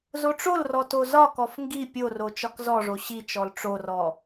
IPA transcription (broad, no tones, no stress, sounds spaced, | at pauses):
z o ʈ͡ʂ o l r ɔ t o z ɒ k ɔ f ŋ ɡ i pʲ o r o t͡ʃ ɒ k z ɔ ʐ o ɕ i t͡ʃ ɔ l ʈ͡ʂ o r ɔ